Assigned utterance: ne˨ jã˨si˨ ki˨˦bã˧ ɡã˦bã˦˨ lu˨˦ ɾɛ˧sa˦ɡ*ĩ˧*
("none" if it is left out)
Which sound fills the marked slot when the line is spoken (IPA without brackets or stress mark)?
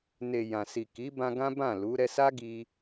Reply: i˧